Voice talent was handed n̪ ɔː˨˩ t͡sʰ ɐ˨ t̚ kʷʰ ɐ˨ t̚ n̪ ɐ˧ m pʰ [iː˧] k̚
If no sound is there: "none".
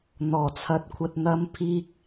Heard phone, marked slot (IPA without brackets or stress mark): iː˧